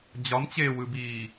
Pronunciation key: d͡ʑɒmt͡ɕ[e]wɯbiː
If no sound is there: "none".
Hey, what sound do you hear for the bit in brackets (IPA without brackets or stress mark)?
eː